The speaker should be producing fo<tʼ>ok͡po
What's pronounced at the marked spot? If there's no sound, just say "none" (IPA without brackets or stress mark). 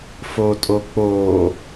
tʼ